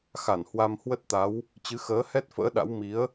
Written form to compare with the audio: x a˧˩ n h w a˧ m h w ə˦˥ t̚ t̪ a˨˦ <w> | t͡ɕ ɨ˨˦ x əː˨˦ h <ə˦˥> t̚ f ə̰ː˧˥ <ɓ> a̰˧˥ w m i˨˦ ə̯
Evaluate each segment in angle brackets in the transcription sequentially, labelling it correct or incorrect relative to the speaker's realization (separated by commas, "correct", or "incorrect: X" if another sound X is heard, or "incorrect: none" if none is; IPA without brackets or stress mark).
correct, incorrect: ɛ˦˥, incorrect: ɗ